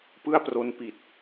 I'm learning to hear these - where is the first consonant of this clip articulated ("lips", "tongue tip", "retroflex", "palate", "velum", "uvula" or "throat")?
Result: lips